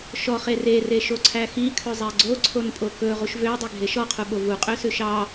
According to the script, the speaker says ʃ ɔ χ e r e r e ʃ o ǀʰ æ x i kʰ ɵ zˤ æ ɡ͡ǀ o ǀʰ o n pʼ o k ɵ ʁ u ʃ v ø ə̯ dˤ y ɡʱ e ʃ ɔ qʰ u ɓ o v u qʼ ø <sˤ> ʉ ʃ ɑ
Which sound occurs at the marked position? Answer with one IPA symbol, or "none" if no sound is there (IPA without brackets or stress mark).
s